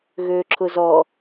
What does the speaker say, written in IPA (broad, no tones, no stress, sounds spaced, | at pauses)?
ɣ ø ǁʰ ʊ z ɔ